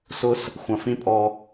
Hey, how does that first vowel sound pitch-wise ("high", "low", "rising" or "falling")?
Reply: high